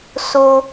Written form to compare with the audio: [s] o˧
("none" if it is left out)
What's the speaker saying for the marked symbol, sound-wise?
s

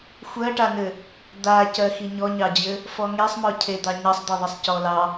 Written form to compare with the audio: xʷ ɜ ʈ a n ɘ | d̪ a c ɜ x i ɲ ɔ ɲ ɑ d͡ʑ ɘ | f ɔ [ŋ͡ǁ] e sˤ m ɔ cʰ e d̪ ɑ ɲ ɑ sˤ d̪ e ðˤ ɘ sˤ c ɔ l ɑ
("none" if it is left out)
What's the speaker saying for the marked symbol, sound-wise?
ŋ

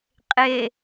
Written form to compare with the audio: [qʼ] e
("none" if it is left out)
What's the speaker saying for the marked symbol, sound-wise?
qʼ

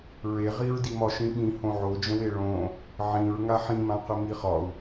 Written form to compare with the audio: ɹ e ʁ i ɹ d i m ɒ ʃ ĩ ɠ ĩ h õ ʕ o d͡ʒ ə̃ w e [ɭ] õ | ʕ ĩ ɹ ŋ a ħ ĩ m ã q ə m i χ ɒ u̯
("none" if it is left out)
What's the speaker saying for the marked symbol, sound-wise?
ɭ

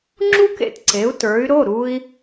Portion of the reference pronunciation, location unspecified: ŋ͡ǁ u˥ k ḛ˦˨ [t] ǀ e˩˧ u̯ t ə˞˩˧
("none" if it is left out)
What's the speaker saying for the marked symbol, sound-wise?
t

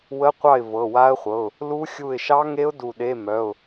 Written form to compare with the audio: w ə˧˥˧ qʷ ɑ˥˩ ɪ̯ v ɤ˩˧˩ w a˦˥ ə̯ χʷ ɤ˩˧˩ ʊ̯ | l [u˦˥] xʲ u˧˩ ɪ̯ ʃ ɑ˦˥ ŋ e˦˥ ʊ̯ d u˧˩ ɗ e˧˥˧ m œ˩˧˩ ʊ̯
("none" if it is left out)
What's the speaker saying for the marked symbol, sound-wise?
u˦˥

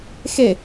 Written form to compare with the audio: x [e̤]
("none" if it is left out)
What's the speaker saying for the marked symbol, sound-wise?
e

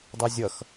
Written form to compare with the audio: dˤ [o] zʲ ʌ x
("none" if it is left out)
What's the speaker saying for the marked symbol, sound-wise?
o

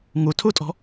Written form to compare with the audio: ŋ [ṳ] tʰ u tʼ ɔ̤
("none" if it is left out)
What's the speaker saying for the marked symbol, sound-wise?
u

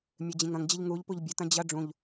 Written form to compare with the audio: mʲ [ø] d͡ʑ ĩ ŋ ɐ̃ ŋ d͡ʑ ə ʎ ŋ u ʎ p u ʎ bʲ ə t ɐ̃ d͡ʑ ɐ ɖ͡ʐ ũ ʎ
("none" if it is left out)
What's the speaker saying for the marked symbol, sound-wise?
ø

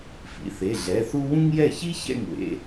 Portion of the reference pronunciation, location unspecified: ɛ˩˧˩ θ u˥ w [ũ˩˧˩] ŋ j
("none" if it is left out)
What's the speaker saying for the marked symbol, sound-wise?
ũ˥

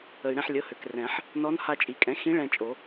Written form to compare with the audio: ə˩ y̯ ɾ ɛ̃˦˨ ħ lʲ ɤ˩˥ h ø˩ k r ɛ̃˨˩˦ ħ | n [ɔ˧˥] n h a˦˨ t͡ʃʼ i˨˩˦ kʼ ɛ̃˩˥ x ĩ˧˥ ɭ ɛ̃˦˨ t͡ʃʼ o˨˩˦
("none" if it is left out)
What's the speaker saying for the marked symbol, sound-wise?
ɔ˧˥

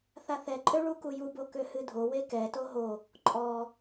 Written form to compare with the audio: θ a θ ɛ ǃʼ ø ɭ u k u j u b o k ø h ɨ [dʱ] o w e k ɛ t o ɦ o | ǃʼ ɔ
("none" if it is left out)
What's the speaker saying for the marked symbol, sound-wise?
dʱ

